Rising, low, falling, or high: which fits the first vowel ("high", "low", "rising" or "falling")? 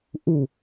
falling